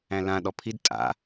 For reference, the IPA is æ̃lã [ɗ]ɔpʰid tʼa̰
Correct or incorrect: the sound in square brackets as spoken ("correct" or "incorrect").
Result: correct